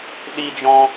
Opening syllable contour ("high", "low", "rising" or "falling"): high